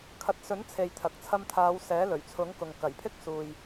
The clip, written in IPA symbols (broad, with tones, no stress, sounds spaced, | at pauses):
kʰ ɐ˨˥ t̚ s ɵ˨˥ n t͡sʰ e˨ j t̪ʰ ɐ˨ k̚ t͡sʰ ɐ˧ m t̪ʰ aː˨˧ w s ɛː˨˥ l ɵ˨˩ ɥ t͡sʰ ʊ˨˥ ŋ k ʊ˨ ŋ k ɐ˨˩ j pʰ ɪ˥ k̚ s uː˨ j